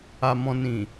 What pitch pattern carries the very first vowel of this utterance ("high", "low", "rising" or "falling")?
low